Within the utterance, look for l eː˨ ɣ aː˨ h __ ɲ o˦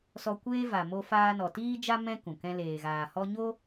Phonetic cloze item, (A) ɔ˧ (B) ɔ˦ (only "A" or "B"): B